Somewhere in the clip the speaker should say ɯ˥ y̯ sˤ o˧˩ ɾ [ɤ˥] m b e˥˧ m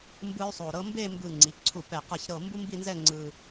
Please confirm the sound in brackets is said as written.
yes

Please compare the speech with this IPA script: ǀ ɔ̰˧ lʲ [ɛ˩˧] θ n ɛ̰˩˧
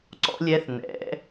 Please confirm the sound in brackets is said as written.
yes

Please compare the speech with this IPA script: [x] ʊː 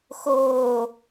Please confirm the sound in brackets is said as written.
yes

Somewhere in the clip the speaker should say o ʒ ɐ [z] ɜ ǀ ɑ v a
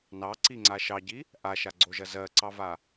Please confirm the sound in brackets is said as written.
yes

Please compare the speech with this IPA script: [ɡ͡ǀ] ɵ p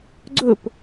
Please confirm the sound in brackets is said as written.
yes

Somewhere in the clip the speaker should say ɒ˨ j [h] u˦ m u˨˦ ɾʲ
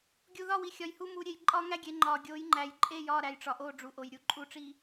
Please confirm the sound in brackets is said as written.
yes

